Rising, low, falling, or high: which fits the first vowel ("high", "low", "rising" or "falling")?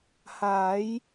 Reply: rising